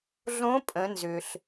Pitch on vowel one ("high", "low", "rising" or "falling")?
rising